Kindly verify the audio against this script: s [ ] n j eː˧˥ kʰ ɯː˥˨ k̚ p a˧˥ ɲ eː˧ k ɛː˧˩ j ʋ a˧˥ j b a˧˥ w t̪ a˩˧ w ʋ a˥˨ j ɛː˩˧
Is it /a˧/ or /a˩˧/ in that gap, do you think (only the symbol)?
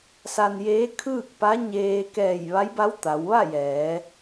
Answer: a˧